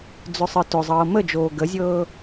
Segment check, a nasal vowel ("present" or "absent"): absent